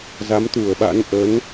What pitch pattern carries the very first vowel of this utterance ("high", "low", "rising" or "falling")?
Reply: rising